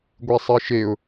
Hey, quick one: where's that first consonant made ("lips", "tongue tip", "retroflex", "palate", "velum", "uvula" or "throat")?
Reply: velum